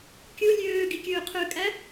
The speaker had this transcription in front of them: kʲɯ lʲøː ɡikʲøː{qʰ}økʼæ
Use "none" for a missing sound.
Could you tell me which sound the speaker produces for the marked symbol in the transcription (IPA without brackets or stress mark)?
qʰ